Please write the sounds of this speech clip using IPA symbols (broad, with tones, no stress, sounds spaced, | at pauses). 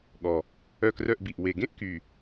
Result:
ɠ ɔ˨˩ | œ˦˨ k r œ˦˨ ʔ b i˨˩ ʔ w e˨˩ ɡ ẽ˥ ʔ k y˨˩